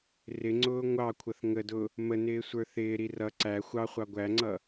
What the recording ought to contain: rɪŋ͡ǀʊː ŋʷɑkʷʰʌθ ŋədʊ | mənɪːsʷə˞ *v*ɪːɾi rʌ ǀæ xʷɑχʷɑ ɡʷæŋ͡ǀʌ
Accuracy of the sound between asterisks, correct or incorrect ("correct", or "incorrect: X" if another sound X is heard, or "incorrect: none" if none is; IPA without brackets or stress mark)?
incorrect: θ